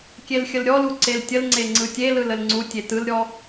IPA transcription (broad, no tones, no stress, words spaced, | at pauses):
kʲelxʲəlɾʲɔlu ǀeltʲəlŋ͡ǀe ŋ͡ǀɯtʲelɯl əlŋ͡ǀutʲe tɯlɾʲɔ